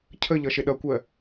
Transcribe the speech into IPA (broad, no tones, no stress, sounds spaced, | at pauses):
cʰ ə ʎ ʌ ʃ ɪ ɗ ʌ kʷ ɜ